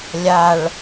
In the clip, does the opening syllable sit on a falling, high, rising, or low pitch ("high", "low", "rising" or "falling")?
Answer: low